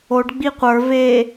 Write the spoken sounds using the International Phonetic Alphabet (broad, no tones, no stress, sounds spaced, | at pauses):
o ɖ ɡ͡b i qʷ ə˞ v e